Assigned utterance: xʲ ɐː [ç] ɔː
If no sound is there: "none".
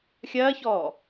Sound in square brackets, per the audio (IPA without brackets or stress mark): ç